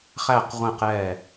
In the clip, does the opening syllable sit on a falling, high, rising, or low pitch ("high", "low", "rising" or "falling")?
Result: falling